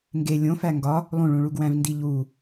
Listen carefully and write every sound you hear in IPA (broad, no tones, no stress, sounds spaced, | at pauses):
ŋ ɡ e lʲ õ f æ ŋ ɡ ɒ | lˠ ũ ɭ ũ ɭ u ɡ w æ̃ v n d i ʎ u